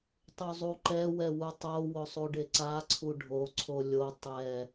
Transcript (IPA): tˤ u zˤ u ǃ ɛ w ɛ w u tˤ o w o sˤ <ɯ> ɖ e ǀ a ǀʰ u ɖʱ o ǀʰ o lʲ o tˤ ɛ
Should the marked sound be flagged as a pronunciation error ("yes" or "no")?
yes